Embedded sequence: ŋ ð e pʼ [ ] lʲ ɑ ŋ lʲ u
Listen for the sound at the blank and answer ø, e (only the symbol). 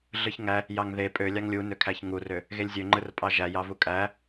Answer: ø